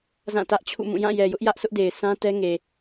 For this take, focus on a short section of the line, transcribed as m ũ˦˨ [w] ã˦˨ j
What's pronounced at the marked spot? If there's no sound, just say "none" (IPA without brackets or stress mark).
j